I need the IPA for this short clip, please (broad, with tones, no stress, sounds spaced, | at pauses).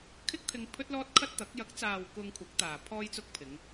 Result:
kʰ ɪ˥ k̚ t̪ʰ ɪ˧ ŋ pʰ ɵ˥ t̚ l ɔː˥ t̚ kʰ ɐ˥ t̚ t̪ ɐ˨˥ k̚ j ɐ˨˥ k̚ t͡s aː˨ w k ʊ˧ ŋ kʷʰ ɐ˨˥ k̚ t̪ aː˨ pʰ ɔː˧ j t͡s ʊ˧ k̚ pʰ ɪ˨˧ ŋ